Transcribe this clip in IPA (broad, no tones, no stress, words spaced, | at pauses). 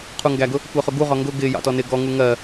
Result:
qʰuŋɡæɡʊ | kʷɜχʊɡuʁɒ ŋɡʊ ɡɪ jɑ̰tɔnɪ ɡɔŋu ŋɜ